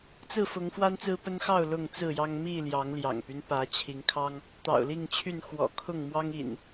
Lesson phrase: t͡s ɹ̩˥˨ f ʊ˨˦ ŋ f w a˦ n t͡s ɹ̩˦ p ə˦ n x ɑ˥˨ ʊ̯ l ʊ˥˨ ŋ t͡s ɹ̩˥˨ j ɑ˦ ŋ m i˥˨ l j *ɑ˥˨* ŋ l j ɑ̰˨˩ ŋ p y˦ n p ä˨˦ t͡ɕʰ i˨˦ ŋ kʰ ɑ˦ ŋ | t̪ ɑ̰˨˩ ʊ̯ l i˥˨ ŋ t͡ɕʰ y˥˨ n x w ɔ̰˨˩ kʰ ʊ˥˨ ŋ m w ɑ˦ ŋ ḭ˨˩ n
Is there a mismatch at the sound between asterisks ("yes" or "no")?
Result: yes